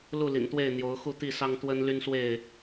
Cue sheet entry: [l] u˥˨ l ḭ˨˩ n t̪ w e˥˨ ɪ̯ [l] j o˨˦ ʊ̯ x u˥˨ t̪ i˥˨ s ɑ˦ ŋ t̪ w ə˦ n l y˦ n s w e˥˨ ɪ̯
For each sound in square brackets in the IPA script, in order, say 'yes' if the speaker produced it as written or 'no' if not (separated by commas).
yes, no